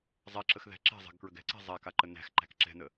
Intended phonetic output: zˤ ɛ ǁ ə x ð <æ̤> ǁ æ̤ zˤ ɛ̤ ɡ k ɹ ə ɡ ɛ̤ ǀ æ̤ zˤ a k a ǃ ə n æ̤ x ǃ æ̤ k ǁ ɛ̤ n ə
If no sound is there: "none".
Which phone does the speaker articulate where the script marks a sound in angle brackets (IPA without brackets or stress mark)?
æ̤